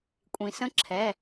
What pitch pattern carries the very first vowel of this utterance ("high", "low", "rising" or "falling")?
low